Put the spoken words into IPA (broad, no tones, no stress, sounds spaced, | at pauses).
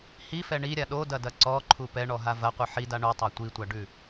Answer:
h i f ɛ ɳ i ɾʲ a ɗ o d ɐ d ɐ ǀ ɔ ǃʰ u p ɛ ɳ ɔ ɦ a v ɐ qʷ ɯ ħ i d a ɳ u tˤ a tʷ i tʷ a ɖ ʉ